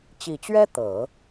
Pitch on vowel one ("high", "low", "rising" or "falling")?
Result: low